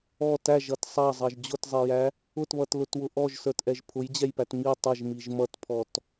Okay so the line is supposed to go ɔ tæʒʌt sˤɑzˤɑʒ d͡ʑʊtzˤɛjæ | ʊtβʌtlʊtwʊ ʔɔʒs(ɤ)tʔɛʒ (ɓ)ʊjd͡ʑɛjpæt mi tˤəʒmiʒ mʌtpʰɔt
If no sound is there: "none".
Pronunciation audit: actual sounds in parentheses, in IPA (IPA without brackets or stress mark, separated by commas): ə˞, pʰ